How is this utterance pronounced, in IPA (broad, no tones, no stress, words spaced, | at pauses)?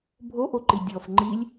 bʱoʔoǃi dʲɔf ŋ͡ǃilʲ